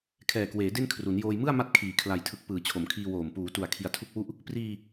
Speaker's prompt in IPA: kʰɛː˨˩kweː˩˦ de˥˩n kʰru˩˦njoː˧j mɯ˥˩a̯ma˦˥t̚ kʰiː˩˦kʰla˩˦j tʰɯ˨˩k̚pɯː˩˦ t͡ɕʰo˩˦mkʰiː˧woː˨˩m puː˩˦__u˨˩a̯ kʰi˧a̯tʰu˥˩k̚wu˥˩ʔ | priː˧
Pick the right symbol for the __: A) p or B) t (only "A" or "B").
B